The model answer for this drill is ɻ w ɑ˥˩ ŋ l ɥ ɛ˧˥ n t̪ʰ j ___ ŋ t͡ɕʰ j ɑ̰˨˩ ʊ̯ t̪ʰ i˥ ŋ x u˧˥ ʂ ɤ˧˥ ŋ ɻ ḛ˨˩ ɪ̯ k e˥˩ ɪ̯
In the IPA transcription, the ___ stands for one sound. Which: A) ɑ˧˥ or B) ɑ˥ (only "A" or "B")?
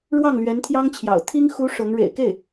B